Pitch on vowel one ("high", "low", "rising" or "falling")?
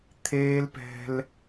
high